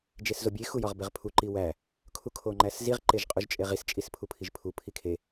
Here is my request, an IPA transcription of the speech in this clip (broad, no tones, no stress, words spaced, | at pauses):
d͡ʒeszobʲe xujɒʁbeʁpʰu ǃiwæ | kʰukʰoŋ͡ǃæsziʁ ǃeʒqʼuʒt͡ʃʼeʁis t͡ʃʼispʰupʰiʒpʰu pʰikʰe